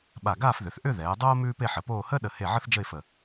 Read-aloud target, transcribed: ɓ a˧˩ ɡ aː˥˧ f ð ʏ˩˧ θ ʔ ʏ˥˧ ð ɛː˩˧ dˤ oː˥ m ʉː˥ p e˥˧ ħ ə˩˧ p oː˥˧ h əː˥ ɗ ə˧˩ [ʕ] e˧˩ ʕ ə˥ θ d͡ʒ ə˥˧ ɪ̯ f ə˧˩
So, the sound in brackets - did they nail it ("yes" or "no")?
no